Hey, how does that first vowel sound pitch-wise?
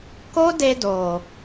high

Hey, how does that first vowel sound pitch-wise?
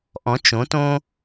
rising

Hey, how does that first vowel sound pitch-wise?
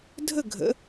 falling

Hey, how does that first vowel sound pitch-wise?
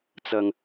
low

